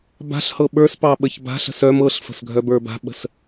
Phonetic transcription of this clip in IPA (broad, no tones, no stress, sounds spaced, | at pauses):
b a̤ ɬ h ɤ ɓ ə˞ s p ɑ ɓ ə ç b a̤ ɬ ə̤ s œ m ɤ ɬ f ə̤ s ɡʱ œ b ə˞ b a̤ ɓ ə̤ s